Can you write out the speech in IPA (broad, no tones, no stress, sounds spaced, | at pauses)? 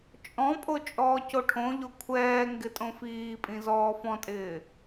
t͡ʃʼ ɔ̃ pʼ o t͡ʃʼ ɔː c o ʈʰ õ ʎ o kʷʰ ɛː ŋ ɡ ɪ tʼ õ f iː pʼ ĩ z ɔː f ɔ̃ tʼ ɪː